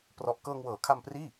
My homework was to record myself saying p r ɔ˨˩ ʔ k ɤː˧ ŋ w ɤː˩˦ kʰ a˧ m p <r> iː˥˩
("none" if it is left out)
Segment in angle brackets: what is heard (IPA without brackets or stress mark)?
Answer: r